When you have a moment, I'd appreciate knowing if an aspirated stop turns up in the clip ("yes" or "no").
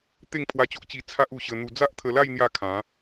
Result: yes